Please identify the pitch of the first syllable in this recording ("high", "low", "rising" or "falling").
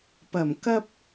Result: low